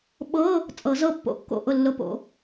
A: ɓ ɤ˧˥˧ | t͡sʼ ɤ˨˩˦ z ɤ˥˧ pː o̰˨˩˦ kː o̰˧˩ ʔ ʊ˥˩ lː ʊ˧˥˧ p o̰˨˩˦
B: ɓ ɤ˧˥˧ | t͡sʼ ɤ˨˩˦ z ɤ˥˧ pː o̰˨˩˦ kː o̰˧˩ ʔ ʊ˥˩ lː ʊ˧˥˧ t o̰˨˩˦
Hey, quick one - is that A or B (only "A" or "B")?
A